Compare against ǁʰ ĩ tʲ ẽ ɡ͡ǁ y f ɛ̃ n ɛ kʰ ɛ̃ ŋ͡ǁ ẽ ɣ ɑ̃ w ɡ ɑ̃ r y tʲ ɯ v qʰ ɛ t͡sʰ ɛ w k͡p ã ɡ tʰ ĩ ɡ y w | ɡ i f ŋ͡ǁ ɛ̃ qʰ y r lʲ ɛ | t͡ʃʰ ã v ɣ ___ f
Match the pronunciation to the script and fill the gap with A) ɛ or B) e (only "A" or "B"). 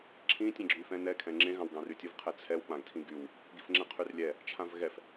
A